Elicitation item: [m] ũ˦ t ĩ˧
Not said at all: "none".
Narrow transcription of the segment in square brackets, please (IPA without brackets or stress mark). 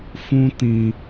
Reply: f